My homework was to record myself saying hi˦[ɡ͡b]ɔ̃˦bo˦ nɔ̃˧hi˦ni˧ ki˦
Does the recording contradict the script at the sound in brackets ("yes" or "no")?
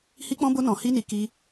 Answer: yes